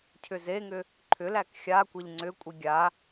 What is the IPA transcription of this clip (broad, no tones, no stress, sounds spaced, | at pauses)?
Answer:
cʰ ʏ z e ŋ ʏ | ǃʰ ʏ l æ k xʲ a kʷ e ʎ ŋ͡ǀ ʏ kʷʼ i ɡʲ a